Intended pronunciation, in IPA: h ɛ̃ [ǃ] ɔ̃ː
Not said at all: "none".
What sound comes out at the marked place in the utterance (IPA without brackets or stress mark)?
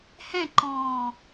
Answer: ǃ